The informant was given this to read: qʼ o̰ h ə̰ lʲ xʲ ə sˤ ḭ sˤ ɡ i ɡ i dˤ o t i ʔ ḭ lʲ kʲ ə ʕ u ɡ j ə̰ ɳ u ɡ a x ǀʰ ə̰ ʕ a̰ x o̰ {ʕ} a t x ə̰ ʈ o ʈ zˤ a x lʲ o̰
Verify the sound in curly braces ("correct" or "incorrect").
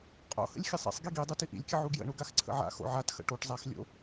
correct